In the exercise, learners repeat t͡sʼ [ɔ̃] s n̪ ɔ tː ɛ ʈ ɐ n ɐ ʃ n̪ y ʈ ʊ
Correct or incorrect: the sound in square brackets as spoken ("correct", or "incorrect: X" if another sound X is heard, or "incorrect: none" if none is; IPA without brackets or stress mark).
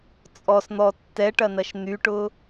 incorrect: ɔ